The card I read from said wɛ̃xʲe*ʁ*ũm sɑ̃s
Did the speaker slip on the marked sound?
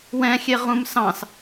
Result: no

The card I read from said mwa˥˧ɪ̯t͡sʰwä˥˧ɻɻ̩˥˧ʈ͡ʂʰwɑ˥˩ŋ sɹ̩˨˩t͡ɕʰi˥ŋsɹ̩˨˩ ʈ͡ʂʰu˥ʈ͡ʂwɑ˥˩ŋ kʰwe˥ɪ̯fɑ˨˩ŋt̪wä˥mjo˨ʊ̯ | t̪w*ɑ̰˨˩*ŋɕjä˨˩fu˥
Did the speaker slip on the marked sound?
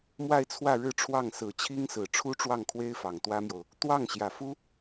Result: yes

